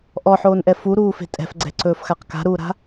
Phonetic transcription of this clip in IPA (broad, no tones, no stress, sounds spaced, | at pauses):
ʔ ɔ ħ oː n ʔ ɛ f u ɾ uː f e̤ tʼ ɛ̤ f ɡ͡ǀ ɛ̤ ǀ ɵː f x a q k a̤ ɾ uː ɾ a̤